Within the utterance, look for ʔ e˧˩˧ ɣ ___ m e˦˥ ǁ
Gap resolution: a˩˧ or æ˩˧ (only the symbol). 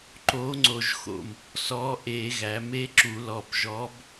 æ˩˧